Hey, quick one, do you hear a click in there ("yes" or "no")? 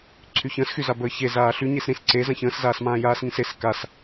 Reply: yes